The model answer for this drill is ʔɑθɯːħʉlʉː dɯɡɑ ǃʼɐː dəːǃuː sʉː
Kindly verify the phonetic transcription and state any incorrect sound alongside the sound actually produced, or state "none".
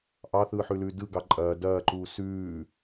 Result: əː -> ɐː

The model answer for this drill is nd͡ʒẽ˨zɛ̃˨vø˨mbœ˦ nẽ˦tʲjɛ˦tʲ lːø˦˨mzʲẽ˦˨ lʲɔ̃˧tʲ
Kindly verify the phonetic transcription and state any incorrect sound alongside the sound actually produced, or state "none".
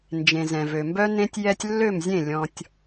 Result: none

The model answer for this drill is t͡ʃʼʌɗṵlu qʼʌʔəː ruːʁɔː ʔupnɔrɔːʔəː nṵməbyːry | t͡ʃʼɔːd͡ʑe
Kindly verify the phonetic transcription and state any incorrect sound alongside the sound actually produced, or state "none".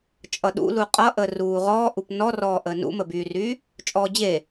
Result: none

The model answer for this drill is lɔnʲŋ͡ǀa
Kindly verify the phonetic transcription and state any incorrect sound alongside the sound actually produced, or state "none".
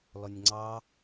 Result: a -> ɑ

